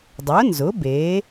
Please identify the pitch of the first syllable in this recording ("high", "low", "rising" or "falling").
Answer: rising